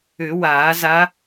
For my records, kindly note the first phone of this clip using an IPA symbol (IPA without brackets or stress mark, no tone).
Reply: ʏ